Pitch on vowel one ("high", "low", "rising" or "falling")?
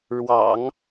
low